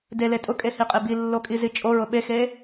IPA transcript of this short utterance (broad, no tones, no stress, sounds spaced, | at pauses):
d e l e tʼ ʊ kʼ e h i qʼ e b i lː o kʼ i z i t͡ʃʼ o ɹ ʊ ɓ e x e